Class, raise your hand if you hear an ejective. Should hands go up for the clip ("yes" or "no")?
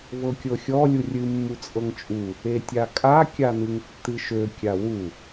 yes